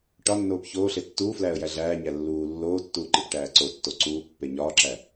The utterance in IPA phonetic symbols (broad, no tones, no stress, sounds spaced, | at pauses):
ʈ ɒ nː oː p ç oː ɬ e tː uː f l æː ə̯ j æ ɮ æː ɲ æ lː uː lː oː tː uː ǃ i p ʈ æː ǀ o tː o ǀ uː pː e ɲ ɒː ǁ æ